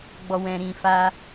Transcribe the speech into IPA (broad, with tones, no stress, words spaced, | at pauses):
ɡ͡bɔ˨wɛ̃˨ɾĩ˨fa˧